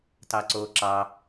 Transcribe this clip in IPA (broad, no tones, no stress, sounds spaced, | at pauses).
t ɑ ǀ oː ǁ ɑ